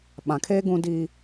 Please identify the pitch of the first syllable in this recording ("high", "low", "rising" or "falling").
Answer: low